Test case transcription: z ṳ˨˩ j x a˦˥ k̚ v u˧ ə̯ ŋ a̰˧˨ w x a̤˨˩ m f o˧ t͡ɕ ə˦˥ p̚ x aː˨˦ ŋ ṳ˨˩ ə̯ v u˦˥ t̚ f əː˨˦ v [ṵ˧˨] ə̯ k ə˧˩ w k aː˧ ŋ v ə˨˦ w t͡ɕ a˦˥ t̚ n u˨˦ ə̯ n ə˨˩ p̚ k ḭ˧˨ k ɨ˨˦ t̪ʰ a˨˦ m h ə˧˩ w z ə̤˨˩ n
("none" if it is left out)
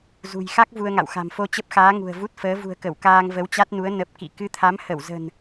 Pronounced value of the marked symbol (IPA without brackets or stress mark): ṳ˨˩